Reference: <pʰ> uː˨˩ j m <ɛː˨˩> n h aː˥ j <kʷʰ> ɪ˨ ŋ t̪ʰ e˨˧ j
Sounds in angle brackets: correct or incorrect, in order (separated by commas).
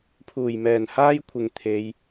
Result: correct, correct, correct